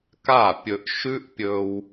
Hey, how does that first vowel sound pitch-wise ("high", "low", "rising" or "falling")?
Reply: falling